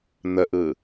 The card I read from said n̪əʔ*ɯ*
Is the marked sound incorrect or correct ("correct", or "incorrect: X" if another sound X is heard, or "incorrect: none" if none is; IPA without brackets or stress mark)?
correct